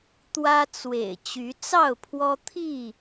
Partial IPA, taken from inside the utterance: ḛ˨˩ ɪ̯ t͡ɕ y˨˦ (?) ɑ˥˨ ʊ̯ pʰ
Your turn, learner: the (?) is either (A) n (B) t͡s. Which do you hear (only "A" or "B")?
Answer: B